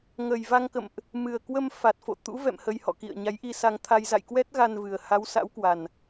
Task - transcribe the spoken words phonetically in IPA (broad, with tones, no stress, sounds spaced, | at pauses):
ŋ ə˨˩ j v a˧ ŋ k ə̰˧˨ m ʔ | m ɨ˨˩ ə̯ k w ə˧ m f a˨˩ t̚ f o̰˧˨ t̪ ṵ˧˥ v ɛ̰˧˨ m h ə˧ j h ɔ̰˧˨ k ḭ˧˨ ə̯ ɲ a˨˦ j ʔ i˧ s a˧ ŋ t̪ʰ a˧ j z a̰˧˨ j k w ɛ˦˥ t̚ ɣ a˧ n v ɨ˨˩ ə̯ h a˨˦ w s a̰˧˥ w k w a˨˩ n